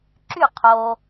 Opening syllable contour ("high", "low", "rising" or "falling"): falling